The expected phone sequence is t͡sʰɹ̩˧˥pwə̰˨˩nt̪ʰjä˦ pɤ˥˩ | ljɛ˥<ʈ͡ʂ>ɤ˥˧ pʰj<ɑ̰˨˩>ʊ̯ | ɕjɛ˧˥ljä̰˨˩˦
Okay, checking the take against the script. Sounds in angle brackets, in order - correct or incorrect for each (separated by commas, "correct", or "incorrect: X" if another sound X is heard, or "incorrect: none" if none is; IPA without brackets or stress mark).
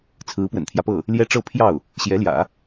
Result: correct, incorrect: ɑ˥˩